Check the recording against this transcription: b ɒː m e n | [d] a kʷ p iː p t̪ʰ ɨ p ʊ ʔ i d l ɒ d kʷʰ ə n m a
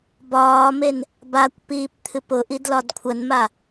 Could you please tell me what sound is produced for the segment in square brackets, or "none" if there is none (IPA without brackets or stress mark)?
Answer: b